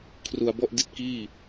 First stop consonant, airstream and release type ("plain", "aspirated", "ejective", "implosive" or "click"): aspirated